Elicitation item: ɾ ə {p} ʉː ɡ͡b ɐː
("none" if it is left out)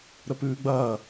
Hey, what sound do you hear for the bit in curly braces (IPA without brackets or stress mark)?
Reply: p